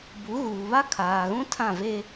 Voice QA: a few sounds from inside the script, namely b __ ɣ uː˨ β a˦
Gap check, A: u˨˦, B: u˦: A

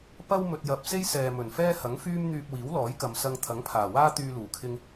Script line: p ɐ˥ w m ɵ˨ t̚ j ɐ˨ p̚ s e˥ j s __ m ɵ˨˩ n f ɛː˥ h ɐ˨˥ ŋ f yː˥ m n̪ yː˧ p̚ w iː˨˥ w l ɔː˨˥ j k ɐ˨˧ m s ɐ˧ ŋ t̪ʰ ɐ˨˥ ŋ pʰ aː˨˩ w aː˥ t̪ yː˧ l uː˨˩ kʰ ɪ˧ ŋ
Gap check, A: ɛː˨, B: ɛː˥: A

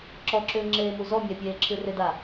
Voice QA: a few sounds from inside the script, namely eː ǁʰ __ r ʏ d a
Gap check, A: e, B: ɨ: B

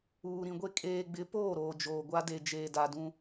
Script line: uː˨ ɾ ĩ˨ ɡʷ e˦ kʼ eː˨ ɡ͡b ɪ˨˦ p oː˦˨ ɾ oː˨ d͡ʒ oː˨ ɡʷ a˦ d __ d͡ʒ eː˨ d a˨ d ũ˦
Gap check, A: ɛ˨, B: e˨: B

